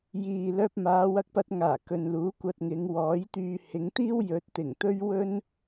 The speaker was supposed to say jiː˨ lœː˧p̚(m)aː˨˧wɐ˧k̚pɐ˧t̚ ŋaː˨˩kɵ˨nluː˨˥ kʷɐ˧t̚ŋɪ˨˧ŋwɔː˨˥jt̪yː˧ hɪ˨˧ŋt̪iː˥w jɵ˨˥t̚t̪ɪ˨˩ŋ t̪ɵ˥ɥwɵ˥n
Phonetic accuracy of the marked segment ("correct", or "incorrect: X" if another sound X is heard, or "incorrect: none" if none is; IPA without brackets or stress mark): correct